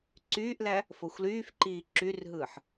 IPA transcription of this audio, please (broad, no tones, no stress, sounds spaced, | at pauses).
ǀ yː ʔ l æ | f o xʷ l yː f ǃ iː ǁ y r ɦ ɯː ħ